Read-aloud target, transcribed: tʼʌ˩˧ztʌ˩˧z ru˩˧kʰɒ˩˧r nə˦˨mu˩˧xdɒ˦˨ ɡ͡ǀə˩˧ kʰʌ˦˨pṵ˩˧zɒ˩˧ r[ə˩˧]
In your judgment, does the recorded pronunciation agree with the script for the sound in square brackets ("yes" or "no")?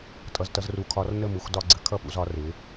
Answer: no